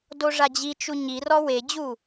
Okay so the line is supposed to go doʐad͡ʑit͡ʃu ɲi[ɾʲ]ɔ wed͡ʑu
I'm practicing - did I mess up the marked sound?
yes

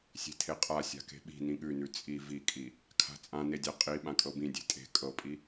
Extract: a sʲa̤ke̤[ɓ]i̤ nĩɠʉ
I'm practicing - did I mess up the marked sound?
no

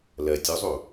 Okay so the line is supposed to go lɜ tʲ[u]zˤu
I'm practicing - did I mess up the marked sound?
no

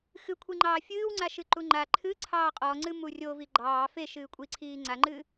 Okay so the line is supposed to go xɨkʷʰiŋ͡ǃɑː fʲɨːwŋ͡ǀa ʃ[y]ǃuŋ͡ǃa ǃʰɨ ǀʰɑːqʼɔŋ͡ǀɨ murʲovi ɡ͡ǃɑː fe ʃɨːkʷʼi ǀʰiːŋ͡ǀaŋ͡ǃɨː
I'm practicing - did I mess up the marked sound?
yes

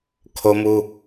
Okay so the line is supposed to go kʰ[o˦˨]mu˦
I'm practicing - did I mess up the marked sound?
yes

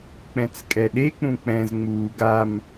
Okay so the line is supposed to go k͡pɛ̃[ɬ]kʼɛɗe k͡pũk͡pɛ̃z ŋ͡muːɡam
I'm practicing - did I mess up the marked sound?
yes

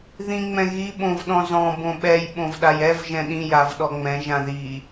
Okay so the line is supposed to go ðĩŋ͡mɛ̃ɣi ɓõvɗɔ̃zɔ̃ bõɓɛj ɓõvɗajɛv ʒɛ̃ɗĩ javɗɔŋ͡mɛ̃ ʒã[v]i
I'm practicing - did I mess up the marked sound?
yes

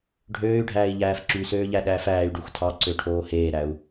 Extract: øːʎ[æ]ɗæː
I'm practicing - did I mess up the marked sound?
no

